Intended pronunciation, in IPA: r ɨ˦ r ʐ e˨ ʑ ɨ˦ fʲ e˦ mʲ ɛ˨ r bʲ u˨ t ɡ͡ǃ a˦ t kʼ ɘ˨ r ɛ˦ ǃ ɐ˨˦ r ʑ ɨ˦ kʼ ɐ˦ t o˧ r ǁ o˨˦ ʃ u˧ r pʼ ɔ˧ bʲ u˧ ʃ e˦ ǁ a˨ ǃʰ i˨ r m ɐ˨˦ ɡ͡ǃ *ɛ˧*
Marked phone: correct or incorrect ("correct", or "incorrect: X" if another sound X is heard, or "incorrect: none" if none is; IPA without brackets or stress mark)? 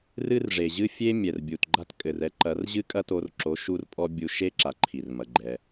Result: correct